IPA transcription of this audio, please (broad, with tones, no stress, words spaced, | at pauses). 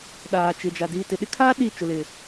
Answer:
ɗaː˨t͡ʃɪ˨d͡ʒa˨ diː˨tɪ˨ɗɪ˦kʰaː˦ ɗi˦˨ t͡ʃo˨lɪ˨